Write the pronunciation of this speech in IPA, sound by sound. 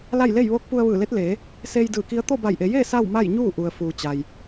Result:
l a˥˨ j l e˥˨ j ʋ oː˧˥ k̚ p u˧ ə̯ ʋ ɯː˧˩ l e˧˥ t̚ l eː˩˧ | s eː˧ j d ɯː˧˩ k i˧˥ ə̯ t̪ o˥˨ b a˧˩ j ʔ e˩˧ j eː˥˨ s a˥˨ w m a˥˨ j ɲ uː˥˨ ʔ u˩ ə̯ f uː˩ t͡ɕ a˩ j

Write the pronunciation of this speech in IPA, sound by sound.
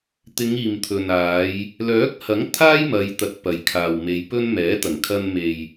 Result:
t̪ ɪ˨˧ ŋ iː˨ m t̪ʰ ɵ˨ n aː˨˧ j | l œː˨˥ k̚ h ɐ˨˥ ŋ t̪ʰ aː˥ j m ɐ˨˧ j t̪ ɐ˨˥ t̚ p ɐ˨ j kʰ aː˨ w m e˨˧ j p ɵ˧ n m ɛː˨˥ t̪ ɐ˨˩ ŋ kʰ ɐ˧ n m e˨ j

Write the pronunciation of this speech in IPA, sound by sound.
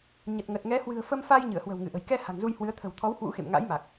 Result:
ɲ ə˨˩ t̚ ŋ ə˨˩ t̚ ŋ ɛ˨˦ h w ɨ̤˨˩ ə̯ f ə˧ m f a˧ j ɲ ɨ˧˩ ə̯ h w ə̤˨˩ w ŋ ɨ˧˩ ʔ ə̤˨˩ j k ɛ˧ h a̤˨˩ ŋ z u˧ j h w ɨ˨˦ ə̯ t̪ʰ ə̤˨˩ w t̪ʰ ɔ˨˦ w h w ṵ˧˥ x ḛ˧˨ m ŋ a̰˧˥ j m a˨˩ k̚

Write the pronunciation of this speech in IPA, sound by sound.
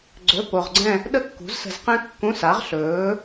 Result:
ɡ͡ǀ ɵ˧˥˧ p o˧ ʁ ɡ͡ǀ ɛ̃˥˧ | ɗ ə˥ kː ṳ˨˥ z s ə̤˧ z q ɛ̃˥ kː ũ˧˥˧ s a˨˥ ʁ ɬ ɵː˨˥

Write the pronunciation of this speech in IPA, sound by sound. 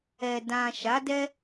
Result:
ɛ˨ d ã˨ ʃ a˨˦ d ɛ˦

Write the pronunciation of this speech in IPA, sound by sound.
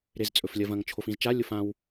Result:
ɾ e z t͡sʼ ɵ f lʲ ɐ v ɐ̃ ŋ t͡ʃʰ o f ĩ z t͡ʃ a lʲ o f ã w

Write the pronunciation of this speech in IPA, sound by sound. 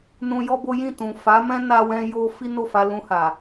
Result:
n ũ˧ j ɔ˦ b o˦ j ĩ˦˨ t ũ˨ f a˨˦ m ɛ̃˦ n a˦ w ɛ̃˦ j o˦ f i˦ n o˦˨ f a˧ l ũ˧ h a˨

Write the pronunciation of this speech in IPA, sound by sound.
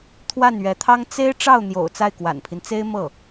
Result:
t̪ʰ w a˥˩ n ɥ ɛ˧˥ t̪ʰ ɑ˥ ŋ t͡s e˥ ɪ̯ ʈ͡ʂ ɑ˥˩ ʊ̯ n̪ j o̰˨˩ ʊ̯ t͡s a˥˩ ɪ̯ k w a̰˨˩ n pʰ i˦ n t͡s e˥ ɪ̯ m ɤ˥˩

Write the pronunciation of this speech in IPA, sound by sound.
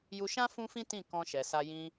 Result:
j u˧ ʃ ã˦ f ũ˦ f ĩ˦ t ĩ˦˨ k ɔ̃˧ ʃ ɛ˨ s a˧ j ĩ˧

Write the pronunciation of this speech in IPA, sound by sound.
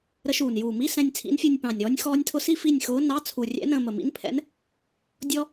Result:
ɾ ə˧˥ ʃ uː˨˩ n j uː˨˩ m i˧˥˧ s ɛ̃˦˨ nʲ t͡sʰ ḭ˧˥ n fʲ ə˞˦˨ nʲ p ɑ̃˨˩ nʲ ɾ ɔː˧˥ nʲ x ɔː˥ nʲ tʰ ʊ˥ s i˥ f i˦˨ nʲ x ʊː˧˥ n ɑ˧˥˧ t͡sʰ u˨˩ rʲ ɛ̰˧˥ n ə̃ː˦˨ m ə˨˩ m ḭ˧˥ n pʰ ɛ̰˧˥ n | dʲ ɔ˥

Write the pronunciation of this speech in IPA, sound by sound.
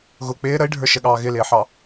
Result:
ɣ ʊ k͡p ɪː ɾ ə i̯ ɖʱ ə˞ ʃ ə ɠ ɑː ɣ ɪ l ɪː ħ ɑ

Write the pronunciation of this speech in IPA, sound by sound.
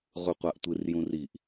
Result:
ʁ u qʷ a ʔ tʷ ɨ r j ũ r i ʔ

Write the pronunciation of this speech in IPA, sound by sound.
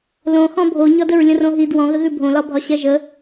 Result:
l õ x ɔ̃ bʱ o ɲ ɒ d ə ɹ lʲ ə̃ r õ ɦ i d w ɔ̃ ɣ ə ɣ ʉ bʱ õ l ɒ bʱ ɒ ɕ ɛ ʒ ə

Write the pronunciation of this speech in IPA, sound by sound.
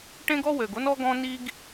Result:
ʈ ẽ˥ ɡ ɔ˥ w ø˨ ɡ o˥ n ɔ˦ ɡ ɔ̃˦ n i˦ ɡ

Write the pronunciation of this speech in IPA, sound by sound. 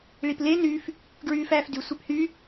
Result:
ɭ i p l e n y f | ɡ ɹ yː f æː f d y sʷ e p h y

